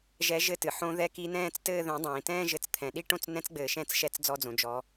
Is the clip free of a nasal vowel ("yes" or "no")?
no